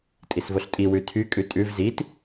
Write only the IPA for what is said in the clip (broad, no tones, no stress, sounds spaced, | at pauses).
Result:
tʼ i s v o ɬ tʼ i w ʉ tʰ y kʼ ʉ tʼ ʉ v z i t